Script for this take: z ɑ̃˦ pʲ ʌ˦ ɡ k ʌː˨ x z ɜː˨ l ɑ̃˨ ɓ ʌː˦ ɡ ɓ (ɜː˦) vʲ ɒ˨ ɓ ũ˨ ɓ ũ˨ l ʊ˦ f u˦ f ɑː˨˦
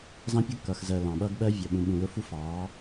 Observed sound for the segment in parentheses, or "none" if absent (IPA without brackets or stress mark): ɜ˦